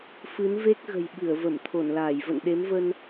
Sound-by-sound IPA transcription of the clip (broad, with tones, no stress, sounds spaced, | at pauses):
f ɨ˨˦ n v e˦˥ k̚ ɣ ə̤˨˩ j ɓ ɨ˧˩ ə̯ v ə˧˩ m t̪ʰ o˧˩ n l aː˧˩ j v ə̰˧˨ n ɗ e˨˦ m v ə˧ n